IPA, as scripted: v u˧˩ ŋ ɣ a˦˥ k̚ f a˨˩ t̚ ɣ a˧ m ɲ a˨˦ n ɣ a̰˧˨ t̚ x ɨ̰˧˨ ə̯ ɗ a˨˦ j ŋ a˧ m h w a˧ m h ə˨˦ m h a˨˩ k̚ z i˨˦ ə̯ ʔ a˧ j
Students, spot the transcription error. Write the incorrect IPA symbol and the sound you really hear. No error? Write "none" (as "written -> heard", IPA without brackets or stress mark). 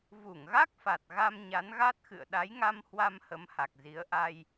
a̰˧˨ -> a˦˥